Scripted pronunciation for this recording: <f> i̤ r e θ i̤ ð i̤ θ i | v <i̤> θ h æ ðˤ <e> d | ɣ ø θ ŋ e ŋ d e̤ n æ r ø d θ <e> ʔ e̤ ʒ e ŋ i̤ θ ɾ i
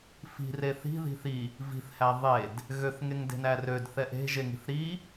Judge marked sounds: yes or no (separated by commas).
yes, yes, yes, no